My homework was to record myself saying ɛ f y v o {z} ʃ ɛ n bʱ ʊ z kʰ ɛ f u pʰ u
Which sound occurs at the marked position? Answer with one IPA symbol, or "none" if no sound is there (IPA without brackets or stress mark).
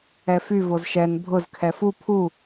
z